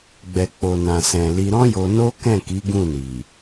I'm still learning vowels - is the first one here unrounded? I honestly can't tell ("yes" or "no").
yes